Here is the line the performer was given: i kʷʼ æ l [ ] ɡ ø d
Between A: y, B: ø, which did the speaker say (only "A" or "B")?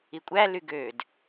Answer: A